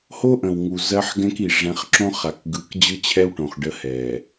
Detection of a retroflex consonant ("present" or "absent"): present